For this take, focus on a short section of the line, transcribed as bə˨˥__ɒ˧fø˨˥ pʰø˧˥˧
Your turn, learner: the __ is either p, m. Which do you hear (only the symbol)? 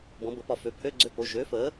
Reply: p